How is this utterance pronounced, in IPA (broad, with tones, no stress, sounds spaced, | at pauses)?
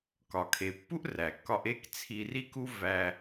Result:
k ɒ˩ kʰ e˩ pː u˥ ʔ r æ˩ kː ɒ˧ ʔ e˥ k t͡sʰ i˧ r i˥ k u˥ v æ˧